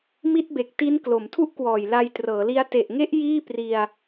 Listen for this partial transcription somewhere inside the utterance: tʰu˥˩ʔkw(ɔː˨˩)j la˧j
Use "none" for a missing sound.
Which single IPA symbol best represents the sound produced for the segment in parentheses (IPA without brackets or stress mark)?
ɔː˨˩